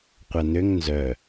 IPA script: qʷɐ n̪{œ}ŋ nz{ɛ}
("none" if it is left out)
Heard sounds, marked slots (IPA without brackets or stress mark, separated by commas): ø, œ